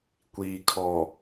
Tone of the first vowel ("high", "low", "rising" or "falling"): low